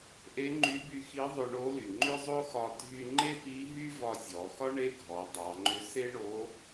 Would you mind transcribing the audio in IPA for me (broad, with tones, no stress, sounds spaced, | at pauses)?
ʔ e˧˥ ŋ͡ǃ y˧˥ b y˧ x i˧˥ ðˤ ʏ˧ ɳ o˧˥ l y˩ ŋ͡ǃ ʏ˥ zˤ o˥ x ɒ˧ dʱ y˧ ŋ͡ǃ e˥ p i˧˥ ɦ y˥ v ɒ˧ zʲ ɔ˩˧ x ɒ˥ ɳ e˥ ɡʱ ɔ˩˧ dˤ ɑ˩˧ ŋ͡ǃ ʏ˧˥ s e˥ ɳ o˧˥